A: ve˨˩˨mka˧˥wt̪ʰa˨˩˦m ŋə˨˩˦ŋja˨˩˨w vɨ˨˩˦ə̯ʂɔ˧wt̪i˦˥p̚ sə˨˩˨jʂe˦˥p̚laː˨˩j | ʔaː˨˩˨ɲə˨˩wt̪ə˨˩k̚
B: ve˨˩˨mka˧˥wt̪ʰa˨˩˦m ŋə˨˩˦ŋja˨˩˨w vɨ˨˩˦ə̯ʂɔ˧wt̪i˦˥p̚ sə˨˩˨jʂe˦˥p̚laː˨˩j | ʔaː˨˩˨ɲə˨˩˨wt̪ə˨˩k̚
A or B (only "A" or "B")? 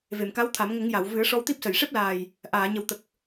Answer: A